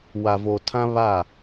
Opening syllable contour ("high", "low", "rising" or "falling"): low